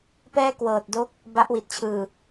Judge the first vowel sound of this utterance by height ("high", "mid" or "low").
mid